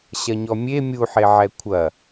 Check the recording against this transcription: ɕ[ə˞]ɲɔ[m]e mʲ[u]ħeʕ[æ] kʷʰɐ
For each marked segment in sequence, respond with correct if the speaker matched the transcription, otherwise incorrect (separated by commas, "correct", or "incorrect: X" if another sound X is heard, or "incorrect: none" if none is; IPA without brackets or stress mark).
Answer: incorrect: ɐ, incorrect: mʲ, correct, incorrect: ɛ